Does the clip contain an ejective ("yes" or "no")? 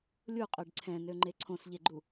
yes